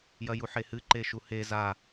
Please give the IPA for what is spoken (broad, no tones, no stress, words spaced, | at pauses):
jɐjuħehɨ ǃeʃuhe za